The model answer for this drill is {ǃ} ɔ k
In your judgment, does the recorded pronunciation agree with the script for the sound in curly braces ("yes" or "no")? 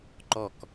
yes